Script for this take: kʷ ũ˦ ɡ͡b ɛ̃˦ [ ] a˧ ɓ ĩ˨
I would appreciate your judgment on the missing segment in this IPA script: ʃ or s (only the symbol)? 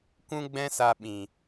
s